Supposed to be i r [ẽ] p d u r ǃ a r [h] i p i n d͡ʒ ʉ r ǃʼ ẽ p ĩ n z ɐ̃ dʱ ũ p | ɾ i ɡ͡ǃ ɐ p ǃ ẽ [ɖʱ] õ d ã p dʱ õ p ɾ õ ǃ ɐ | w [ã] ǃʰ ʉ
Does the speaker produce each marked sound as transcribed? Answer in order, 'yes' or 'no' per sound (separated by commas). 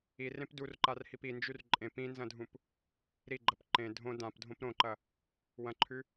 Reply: yes, yes, no, no